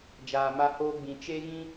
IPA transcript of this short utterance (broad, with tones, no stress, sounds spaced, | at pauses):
d͡ʒ aː˧ m a˦ h oː˦ ɡ͡b ĩ˧ t͡ʃ e˦ ɣ ĩ˦